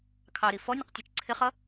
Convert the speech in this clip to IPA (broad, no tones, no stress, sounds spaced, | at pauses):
kʰ ɑ ɾ i f ɔ nʲ ʌ q tʲ ɛ t͡ʃ ǀʰ ɪ χ ʌ